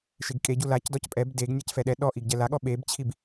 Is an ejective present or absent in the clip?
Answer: present